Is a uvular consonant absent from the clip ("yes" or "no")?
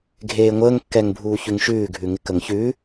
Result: yes